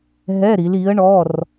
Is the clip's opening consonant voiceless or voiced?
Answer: voiced